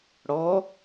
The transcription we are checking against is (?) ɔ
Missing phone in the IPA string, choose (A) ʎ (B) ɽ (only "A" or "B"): B